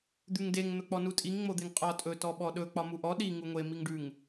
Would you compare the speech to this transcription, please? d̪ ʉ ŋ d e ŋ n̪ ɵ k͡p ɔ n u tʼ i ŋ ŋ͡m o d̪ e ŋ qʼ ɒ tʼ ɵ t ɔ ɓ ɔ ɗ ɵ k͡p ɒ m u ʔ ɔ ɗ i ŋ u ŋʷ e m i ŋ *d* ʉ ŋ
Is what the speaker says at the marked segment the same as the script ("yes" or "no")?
no